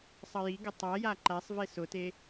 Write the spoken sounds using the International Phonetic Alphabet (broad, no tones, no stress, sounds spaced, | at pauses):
sˤ ʌ j i ɡ ɤ tˤ a j a ǃ æ sˤ v e s ʊ t e